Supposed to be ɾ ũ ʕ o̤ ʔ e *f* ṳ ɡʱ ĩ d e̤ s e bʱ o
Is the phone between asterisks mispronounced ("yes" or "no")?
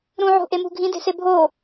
yes